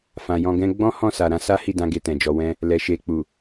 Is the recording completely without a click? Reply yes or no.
yes